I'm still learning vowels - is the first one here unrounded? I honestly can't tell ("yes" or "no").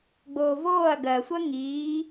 no